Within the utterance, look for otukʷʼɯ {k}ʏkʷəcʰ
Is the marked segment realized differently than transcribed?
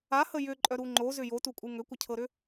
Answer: yes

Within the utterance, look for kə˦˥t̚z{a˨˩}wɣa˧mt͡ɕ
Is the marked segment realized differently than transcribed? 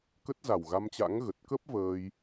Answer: no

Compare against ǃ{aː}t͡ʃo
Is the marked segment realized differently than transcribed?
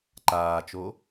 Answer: no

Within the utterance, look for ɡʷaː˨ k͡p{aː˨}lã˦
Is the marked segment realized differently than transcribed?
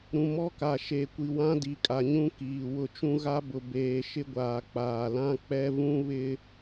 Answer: no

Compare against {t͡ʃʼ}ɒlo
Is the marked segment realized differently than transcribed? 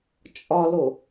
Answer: no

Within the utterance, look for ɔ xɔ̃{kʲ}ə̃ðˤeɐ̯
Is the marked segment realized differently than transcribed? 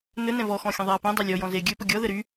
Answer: yes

